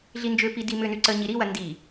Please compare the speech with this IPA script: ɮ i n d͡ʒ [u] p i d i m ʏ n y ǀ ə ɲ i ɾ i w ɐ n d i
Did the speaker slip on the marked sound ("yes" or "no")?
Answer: yes